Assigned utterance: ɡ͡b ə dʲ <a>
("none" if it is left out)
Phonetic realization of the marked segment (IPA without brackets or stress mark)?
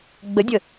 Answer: ə